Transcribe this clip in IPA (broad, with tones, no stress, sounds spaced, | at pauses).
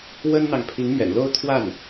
w ə˥ n n̪ ɑ˨ ŋ pʰ i˧˥ ŋ m ɥ ɛ̰˨˩ n l o˥ ʊ̯ t̪ʰ w a˥˩ n